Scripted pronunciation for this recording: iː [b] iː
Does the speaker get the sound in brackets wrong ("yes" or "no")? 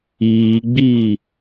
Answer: yes